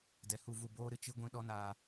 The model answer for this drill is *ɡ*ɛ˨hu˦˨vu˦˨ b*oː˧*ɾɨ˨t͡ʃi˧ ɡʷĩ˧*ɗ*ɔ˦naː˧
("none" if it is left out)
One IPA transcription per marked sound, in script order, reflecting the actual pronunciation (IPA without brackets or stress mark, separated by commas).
d, oː˧, ɗ